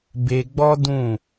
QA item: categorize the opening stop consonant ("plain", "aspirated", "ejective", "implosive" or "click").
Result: plain